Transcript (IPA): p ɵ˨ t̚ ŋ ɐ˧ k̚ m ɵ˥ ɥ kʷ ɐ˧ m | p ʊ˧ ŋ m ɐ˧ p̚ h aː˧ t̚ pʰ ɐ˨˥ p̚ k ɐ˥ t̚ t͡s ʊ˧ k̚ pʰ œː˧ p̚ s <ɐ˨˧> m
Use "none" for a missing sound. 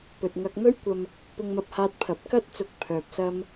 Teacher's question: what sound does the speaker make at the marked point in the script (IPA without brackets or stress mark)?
ɐ˥